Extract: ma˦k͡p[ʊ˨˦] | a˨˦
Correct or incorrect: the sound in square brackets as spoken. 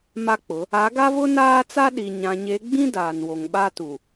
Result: correct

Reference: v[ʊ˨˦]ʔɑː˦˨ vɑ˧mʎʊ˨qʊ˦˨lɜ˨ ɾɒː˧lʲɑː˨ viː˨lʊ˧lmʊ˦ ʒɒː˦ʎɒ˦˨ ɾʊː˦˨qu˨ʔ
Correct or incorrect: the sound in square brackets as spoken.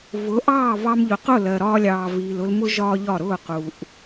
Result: correct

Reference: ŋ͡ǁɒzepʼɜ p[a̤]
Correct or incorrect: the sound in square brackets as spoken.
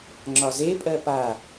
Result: incorrect: a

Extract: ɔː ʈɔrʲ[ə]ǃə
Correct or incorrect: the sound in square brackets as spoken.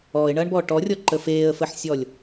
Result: incorrect: ɔ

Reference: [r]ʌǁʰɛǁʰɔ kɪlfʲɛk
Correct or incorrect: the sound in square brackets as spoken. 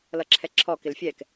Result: incorrect: l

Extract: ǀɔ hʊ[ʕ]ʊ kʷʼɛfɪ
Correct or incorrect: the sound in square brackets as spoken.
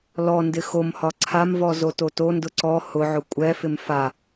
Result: correct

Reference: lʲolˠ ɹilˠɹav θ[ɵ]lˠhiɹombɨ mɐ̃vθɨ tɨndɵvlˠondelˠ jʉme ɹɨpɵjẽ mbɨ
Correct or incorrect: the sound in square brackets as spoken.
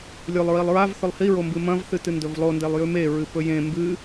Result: correct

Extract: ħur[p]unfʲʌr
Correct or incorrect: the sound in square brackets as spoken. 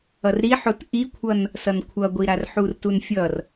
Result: incorrect: t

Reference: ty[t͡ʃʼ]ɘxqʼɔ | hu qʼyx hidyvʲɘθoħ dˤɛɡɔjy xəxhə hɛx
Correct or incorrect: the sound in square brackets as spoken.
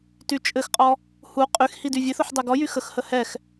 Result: correct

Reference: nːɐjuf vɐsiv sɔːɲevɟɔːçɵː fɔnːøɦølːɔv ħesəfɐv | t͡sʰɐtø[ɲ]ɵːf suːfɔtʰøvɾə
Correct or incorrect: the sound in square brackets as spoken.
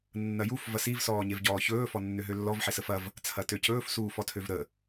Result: incorrect: c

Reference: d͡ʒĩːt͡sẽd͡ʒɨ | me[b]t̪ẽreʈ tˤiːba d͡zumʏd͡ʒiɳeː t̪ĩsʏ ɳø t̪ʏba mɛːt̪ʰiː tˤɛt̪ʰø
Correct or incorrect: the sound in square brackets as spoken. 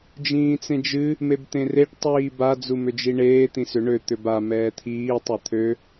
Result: correct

